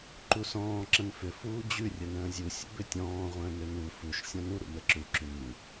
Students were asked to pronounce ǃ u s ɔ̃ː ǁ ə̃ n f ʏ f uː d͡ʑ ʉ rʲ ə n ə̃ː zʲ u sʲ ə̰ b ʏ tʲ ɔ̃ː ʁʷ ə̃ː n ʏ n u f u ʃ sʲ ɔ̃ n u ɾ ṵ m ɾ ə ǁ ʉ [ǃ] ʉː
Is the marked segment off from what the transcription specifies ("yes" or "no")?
yes